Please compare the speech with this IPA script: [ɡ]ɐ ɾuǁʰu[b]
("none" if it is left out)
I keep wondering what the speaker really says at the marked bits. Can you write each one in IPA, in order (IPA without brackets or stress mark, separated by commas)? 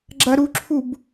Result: ɡ͡ǁ, b